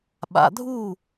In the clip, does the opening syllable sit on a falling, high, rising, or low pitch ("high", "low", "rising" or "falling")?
low